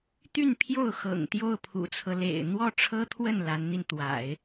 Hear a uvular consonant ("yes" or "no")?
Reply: no